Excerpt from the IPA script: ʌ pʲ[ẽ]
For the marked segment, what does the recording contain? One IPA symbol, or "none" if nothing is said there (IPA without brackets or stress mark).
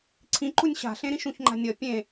ẽ